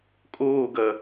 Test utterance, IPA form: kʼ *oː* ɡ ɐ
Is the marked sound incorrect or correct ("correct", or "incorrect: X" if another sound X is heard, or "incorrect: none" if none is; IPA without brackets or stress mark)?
correct